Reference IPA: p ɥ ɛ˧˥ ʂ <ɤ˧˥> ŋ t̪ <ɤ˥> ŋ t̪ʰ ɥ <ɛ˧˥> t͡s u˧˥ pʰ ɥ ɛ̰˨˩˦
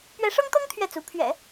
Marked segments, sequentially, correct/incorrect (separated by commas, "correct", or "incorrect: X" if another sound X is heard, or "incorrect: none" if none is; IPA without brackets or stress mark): incorrect: ɤ˥, correct, incorrect: ɛ˥˩